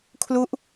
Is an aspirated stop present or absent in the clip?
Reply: present